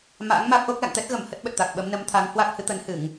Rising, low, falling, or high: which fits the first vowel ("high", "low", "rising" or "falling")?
rising